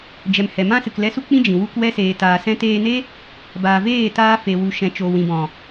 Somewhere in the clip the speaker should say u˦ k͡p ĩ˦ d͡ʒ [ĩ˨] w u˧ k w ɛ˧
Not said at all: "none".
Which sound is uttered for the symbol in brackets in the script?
ĩ˨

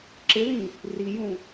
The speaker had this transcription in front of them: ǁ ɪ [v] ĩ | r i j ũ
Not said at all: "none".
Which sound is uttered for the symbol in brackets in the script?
ð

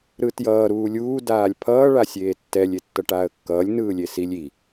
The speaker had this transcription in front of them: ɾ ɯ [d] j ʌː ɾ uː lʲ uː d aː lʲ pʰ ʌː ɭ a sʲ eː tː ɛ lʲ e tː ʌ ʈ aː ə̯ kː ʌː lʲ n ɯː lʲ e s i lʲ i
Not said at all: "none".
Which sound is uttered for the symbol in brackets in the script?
t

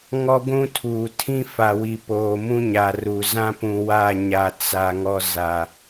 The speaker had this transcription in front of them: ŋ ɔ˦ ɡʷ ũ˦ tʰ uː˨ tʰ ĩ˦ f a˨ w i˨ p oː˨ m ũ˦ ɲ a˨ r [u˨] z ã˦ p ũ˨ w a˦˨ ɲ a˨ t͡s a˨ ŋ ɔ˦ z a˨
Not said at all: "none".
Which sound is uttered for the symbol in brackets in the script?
u˨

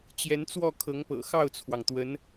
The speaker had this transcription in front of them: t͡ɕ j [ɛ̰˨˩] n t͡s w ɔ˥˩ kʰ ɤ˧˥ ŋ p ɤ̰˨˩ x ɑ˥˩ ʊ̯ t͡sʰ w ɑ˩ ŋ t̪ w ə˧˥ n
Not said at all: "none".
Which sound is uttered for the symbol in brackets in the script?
ɛ˧˥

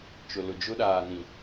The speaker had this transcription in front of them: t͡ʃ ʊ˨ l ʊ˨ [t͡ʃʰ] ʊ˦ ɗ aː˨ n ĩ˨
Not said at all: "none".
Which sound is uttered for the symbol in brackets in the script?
d͡ʒ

